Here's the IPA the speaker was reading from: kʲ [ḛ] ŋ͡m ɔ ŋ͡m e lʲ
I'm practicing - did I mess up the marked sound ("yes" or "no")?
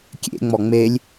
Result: no